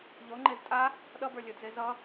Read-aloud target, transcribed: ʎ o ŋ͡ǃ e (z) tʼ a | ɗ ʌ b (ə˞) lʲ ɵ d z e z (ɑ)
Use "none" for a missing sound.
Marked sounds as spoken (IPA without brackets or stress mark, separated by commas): z, ə˞, ʌ